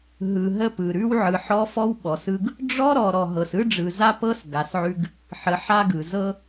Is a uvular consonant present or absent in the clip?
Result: absent